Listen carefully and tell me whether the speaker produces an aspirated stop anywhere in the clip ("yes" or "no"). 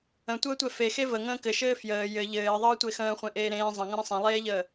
no